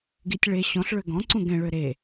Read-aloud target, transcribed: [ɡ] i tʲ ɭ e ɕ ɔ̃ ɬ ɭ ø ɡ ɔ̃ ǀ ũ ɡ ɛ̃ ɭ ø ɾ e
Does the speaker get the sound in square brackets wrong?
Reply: no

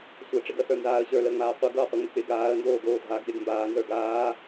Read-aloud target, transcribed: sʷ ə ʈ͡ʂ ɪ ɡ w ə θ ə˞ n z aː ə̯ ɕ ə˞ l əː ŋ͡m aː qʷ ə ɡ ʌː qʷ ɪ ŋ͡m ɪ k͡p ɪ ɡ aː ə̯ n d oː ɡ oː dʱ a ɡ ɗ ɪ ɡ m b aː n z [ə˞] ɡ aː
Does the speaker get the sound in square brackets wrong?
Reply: no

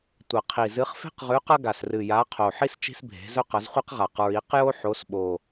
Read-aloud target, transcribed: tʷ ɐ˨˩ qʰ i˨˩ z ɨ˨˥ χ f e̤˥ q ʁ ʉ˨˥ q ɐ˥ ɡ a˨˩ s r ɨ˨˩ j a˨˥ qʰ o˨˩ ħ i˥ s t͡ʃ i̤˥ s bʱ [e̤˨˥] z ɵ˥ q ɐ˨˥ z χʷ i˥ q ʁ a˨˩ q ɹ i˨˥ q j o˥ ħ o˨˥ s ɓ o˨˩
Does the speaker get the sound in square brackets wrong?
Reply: no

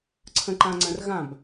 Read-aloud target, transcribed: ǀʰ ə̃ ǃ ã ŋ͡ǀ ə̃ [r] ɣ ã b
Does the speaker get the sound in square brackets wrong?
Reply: no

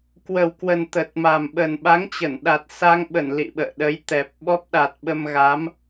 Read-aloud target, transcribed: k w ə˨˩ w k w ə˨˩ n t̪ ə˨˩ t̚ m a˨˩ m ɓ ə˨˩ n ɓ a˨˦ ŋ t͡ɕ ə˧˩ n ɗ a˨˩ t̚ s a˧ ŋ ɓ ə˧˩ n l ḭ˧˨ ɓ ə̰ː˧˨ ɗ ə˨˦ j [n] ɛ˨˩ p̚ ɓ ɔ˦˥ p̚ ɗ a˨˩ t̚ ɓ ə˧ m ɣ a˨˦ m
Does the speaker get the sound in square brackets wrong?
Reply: yes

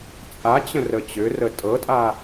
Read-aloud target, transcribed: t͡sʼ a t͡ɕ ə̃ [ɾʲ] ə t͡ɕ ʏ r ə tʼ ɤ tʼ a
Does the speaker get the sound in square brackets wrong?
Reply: yes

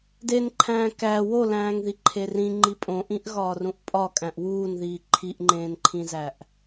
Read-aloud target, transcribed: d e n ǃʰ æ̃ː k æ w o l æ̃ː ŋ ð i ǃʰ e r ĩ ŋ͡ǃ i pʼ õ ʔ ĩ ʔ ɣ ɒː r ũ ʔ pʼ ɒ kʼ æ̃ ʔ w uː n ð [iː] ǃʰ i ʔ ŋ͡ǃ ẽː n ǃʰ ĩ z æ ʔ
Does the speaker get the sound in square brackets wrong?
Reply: no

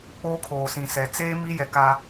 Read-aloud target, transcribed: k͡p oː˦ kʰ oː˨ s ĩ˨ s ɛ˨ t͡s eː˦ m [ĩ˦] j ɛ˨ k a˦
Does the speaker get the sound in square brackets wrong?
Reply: yes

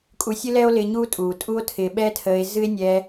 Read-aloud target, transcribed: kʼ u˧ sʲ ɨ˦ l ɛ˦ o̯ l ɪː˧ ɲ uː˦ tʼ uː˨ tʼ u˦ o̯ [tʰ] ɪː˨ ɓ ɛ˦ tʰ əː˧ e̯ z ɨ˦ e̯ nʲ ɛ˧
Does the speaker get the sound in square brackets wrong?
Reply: no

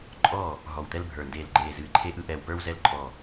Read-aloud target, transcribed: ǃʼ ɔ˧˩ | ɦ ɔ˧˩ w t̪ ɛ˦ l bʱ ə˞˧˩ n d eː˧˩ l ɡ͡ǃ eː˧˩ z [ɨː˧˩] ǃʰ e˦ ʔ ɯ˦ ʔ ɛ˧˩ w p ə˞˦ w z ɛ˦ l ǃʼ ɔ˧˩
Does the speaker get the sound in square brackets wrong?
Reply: no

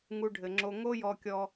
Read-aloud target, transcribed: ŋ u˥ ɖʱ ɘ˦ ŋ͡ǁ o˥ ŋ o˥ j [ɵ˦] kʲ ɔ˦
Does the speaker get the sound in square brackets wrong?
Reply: yes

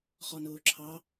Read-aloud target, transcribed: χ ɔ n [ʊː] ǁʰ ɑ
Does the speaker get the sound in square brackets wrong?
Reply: no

